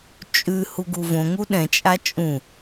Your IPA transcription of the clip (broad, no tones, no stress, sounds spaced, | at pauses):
t͡ʃʼ ʉ h u ɡ u v õ ŋ u ɗ ɛ̃ t͡ʃʼ a t͡ʃʼ ũ